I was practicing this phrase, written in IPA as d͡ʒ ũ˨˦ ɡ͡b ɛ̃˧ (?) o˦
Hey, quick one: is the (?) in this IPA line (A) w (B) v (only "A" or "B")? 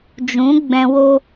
A